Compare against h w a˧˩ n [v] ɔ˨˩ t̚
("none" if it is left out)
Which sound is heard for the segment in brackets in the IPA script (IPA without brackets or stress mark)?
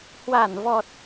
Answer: v